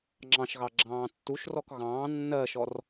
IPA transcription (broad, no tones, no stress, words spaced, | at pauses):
ŋ͡ǁɑ̃ʃɣɑ ɡ͡ǁɑ̃ːtːuʃrɔk ɣɑ̃ː nːɜʃɔr